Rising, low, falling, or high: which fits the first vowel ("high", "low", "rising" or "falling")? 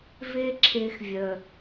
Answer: high